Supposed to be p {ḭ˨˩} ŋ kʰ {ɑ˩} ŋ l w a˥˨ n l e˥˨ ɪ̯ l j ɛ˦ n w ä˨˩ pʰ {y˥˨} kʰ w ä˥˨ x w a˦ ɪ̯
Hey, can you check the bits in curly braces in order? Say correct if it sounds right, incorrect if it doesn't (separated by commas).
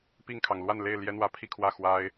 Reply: incorrect, correct, incorrect